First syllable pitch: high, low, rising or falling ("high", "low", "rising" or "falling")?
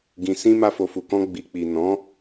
low